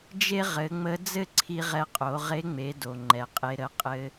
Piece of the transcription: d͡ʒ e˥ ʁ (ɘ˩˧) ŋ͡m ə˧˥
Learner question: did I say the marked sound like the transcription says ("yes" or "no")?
yes